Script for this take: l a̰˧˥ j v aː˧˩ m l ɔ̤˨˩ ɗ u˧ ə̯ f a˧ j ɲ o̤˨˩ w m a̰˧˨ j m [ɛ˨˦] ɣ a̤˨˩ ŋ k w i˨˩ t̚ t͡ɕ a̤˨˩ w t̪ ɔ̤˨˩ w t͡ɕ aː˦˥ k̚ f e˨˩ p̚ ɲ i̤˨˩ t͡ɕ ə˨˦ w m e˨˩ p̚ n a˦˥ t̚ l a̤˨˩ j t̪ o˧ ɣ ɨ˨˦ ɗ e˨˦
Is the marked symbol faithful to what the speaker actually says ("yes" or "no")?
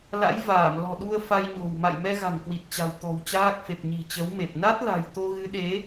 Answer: no